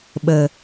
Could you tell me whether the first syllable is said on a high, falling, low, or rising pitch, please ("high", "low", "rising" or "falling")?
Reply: low